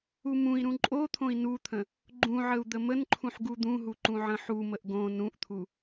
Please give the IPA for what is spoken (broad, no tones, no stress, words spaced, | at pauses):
umũi̯ɾũ ǃʼot̪ʰõi̯ nut̪ʰə̃ | ɡ͡ǃũʕəu̯ d̪əmənǃʰũħ ɡud̪ũɦu ǃũʕə̃ħuməʔ ɡõ nũʔt̪ʰu